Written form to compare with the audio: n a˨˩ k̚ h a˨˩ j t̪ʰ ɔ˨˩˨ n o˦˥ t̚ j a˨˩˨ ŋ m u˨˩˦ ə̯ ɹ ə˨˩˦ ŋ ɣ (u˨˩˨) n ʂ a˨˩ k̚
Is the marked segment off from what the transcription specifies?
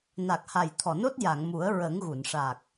no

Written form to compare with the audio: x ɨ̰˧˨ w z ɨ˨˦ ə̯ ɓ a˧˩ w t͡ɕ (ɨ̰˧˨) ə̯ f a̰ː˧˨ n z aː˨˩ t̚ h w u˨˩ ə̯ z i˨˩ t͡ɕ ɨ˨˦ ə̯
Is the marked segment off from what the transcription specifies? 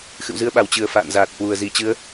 yes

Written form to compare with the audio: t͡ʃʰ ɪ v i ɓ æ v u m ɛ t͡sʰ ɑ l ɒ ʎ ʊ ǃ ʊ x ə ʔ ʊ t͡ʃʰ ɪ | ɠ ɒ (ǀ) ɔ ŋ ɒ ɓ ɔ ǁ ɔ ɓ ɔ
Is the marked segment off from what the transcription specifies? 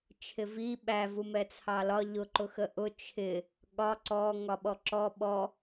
no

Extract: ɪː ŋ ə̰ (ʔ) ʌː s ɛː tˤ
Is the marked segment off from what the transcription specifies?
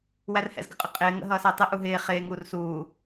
yes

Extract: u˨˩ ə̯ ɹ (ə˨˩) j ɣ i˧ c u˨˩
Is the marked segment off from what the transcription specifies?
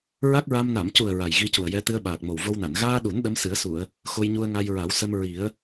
yes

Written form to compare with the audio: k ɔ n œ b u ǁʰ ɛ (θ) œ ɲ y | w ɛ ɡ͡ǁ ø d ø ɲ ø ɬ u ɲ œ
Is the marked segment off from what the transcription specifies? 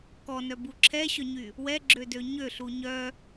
yes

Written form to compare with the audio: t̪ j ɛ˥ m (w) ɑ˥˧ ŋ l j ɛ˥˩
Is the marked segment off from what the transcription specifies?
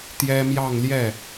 yes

